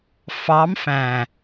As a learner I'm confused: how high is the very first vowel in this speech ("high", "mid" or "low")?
low